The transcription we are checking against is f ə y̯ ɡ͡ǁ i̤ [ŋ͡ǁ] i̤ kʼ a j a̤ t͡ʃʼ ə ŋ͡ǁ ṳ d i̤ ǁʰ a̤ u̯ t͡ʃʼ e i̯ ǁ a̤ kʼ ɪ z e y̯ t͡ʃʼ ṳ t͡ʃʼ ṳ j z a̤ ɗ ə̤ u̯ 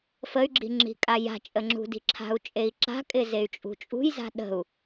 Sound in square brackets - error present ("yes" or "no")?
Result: no